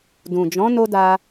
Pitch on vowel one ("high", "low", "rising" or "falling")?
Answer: low